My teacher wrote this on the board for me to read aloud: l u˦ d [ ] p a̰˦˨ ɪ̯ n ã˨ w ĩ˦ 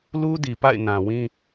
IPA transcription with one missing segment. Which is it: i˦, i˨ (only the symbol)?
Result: i˨